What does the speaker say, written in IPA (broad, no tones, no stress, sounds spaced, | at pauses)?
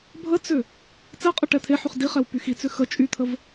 bʱ ə t͡s ʏ | t͡s ɛ qʼ ə ʈ ɛ t̪ʰ e ħ y χ d i χ ɛ w p y x i t͡s ʏ x ə t͡ʃʼ y t̪ʰ ə v